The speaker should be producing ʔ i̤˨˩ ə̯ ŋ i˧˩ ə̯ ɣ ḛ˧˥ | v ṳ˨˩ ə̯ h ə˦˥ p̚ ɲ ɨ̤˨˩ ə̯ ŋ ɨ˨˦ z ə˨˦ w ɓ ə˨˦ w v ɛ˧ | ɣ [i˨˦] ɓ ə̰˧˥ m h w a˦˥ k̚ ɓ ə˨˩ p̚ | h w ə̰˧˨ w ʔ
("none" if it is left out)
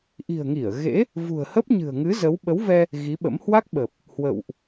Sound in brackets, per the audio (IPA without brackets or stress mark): i˨˦